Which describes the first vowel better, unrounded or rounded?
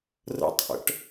unrounded